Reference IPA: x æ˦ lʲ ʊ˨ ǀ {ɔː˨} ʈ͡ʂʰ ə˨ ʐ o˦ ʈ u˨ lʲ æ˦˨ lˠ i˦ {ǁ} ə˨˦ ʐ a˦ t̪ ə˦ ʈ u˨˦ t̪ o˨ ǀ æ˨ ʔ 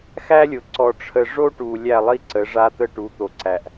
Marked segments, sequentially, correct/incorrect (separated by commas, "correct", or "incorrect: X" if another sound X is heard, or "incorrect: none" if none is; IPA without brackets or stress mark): incorrect: ɔ˨, incorrect: ǀ